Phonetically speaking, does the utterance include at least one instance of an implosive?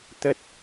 no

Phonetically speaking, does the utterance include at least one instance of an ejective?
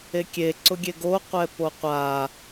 no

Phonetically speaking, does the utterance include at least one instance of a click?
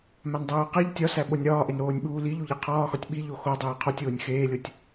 no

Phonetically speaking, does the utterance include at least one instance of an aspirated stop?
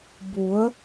no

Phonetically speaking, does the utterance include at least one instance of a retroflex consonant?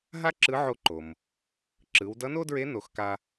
no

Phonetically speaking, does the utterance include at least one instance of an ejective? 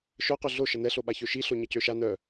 no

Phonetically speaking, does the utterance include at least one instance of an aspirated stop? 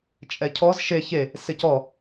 yes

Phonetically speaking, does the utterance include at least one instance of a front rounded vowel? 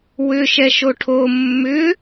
yes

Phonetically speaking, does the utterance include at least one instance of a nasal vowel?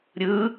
no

